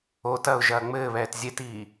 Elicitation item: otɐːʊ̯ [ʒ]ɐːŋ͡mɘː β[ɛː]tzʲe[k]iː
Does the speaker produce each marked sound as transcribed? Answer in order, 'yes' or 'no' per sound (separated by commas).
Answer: yes, yes, no